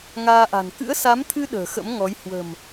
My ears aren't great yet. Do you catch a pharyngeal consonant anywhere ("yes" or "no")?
no